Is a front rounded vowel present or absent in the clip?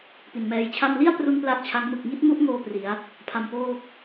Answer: absent